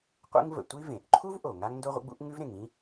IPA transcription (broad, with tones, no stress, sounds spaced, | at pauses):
qʷ ḛ˥ ŋ v ə̰˩ tʷ i˥ v ẽ˩ ʔ ǃʰ u˥ v ʔ o˩ ŋ a˥ ŋ n d o˥ ʁʷ ə̰˥ ɡ͡b ṵ˥ ʔ ŋ ʉ˥ v ɾ ẽ˩ ŋ ĩ˥